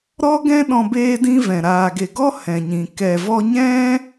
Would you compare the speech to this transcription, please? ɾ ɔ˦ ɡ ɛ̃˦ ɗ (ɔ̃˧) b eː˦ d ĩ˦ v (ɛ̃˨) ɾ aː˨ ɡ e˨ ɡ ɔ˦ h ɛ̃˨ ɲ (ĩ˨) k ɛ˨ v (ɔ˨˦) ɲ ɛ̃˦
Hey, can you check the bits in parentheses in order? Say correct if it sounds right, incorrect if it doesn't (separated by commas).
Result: correct, correct, correct, incorrect